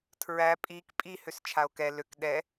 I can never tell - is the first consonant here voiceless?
yes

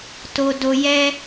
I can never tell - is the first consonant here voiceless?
yes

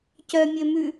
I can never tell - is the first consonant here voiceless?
yes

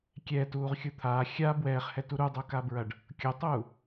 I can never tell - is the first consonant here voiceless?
yes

